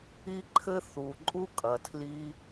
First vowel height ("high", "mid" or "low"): high